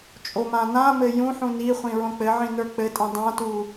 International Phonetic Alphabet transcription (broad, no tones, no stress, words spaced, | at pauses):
t͡ʃʼomãnãmɘ jũħũ niχʷĩ ɹõk͡pɘʕĩ nə˞k͡pɘtʼĩ dˤãtu